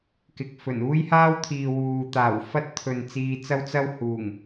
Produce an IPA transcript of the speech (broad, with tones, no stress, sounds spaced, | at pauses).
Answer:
k ɪ˨˥ k̚ f ɵ˨˩ n uː˥ j h aː˥ w t̪ʰ iː˨ w uː˨ t̪ aː˨˩ w f ɐ˥ t̚ t̪ʰ ɵ˨ n t͡s iː˧ t͡s ɐ˥ w t͡s ɐ˥ w h uː˨˩ ŋ